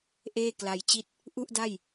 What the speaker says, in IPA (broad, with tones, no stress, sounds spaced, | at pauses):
ʔ eː˥˩ k l a˧ j t͡ɕ i˥˩ t̚ | ʔ u˥˩ ʔ d a˥˩ j